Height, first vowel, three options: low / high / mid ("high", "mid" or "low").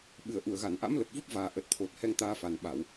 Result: high